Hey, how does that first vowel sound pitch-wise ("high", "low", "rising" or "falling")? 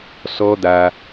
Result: high